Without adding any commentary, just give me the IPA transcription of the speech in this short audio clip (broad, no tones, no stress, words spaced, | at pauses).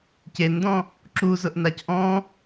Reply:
cendɔ̃ | ǁuzʊʔnac ʔɔ̃